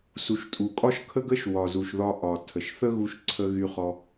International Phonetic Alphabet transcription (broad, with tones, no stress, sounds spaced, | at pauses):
s u˩ ʃ tʼ u˩ kʼ ɒ˥ ʃ kʰ ə˥ ɡ ə˥ ʃ w ɒ˩ z u˩ ʃ ð ɒ˧ ʔ ɒ˩ tʰ ə˩ ʃ θ ə˥ ɣ u˧ ʃ ǀʰ ə˧ ɣ y˧ χ ɔ˧